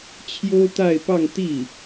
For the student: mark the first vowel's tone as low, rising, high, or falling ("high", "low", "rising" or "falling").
high